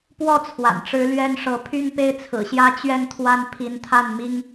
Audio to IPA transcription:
p w ɔ˥˩ t͡sʰ w a̰˨˩ n ʈ͡ʂ ɻ̩˧˥ l ɥ ɛ˥ n ʂ ɤ˧˥ pʰ y˥˧ n p e˥˩ ɪ̯ t͡sʰ ɹ̩˨˩ ɕ j ä˥ t͡ɕ ɥ ɛ˥˩ n t̪ʰ w a˥ n pʰ i˧˥ n t̪ʰ a˥˩ n m i˥ ŋ

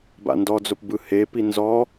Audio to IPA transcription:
b a̰ n d ɔ d͡z o p b ɯ h e p i n z ɔ

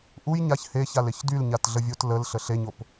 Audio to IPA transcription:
ʔ u j ɲ a ç h e ç a l e ç d y l ɲ a t ɮ ə vʲ o t l ə l ɬ ə ɬ e ɲ o p

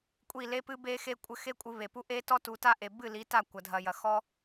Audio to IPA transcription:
kʷʼ i˦˨ l e˦ p ɨ˦ b e˦ x e˦ kʷʼ ɘ˧ x e˦ kʷʼ ɨ˧ β e˨ p u˦ ʔ e˦ t ɔ˦ t u˨˦ t a˦ ʔ e˨ b ɨ˦˨ l i˨˦ t a˦˨ kʷ ɐ˨ dʱ ɐ˨ j ɐ˨ x ɔ˦

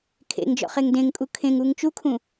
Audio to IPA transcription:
kʰ ḛ ŋ d͡ʒ ɔ̰ χ e ŋ d ẽ ŋ kʼ u kʰ ẽ ŋ u ŋ t͡ʃ u kʰ ũ

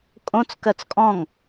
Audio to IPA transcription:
kʼ õ t͡s k ɜ t͡s kʼ ɔ̃ ŋ

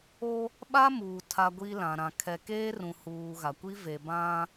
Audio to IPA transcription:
o˦ | ɓ a˦ m uː˨ tʰ a˦ ɡʷ i˦ l ã˨ ɾ ã˨ kʰ ɛ˨ k eː˦ r ũ˨ h uː˨ ɣ a˨ kʷ i˦ v e˨ b ã˦

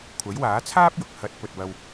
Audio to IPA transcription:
kʷʰ ɐ˨˥ j w aː˨˥ t͡sʰ aː˥ p̚ j ʊ˨ k̚ h ɐ˨˥ t̚ p ɵ˨ t̚ w ɐ˧ w

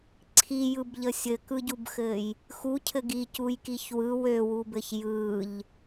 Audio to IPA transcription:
ǀʰ i j ɯ b ʎ ə sʲ ɘ k ɯ ɟ u b x ɘ j | x u cʰ ɘ ɡ i c u j k i ç w ɯ w ø w u b ɘ ç j ɯ ʎ

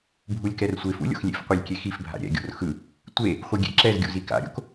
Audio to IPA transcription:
bʱ u lʲ k ɛ r sʷ e f ṵ lʲ o̰ x lʲ ḛ f qʷ ɛ lʲ kʲ e x i f bʱ a̰ ɾʲ ɛ̰ ɡʲ o̰ r x ɯ | tʷ e | χʷ ɯ ɡʲ ḛ ǁ ɛ z ɡʲ ṵ z i k a̰ ɾʲ o̰ k

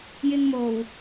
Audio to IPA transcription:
j ɪ˧ ŋ m o˨˩ w

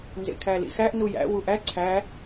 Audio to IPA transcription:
n z ḛ kʰ æ l ḭ x æ ʔ n u j æ̰ w u ʔ æ ǀʰ æ

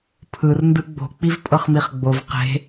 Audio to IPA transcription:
pʰ ɯ r n d ɯ ɡ͡b o̤ k͡p i v pʼ ɤ χ m i χ ɡ͡b o v q e̤

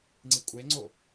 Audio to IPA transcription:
ŋ͡ǀ i kʷʼ e ŋ͡ǀ o

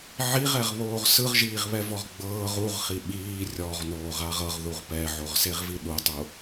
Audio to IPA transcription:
ʕ i ʁ ɛ ʁ β oː ʁ s ɯ ʁ ʒ iː ʁ β ɛ v ɔ ʁ ɡ͡b ɤː ʁ u ʁ χ i ɓ iː rʲ ɔ ʁ n oː ʁ a ʁ ɤ ʁ ð u ʁ p ɛ ʕ o ʁ s e ʁ v i ɗ u tˤ u

